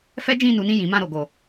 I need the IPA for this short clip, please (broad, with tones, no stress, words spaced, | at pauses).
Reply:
fɛ˦d͡ʒĩ˦˨nu˨˦nĩ˦˨ jĩ˨˦mã˦˨ ɾo˨˦ɡo˦˨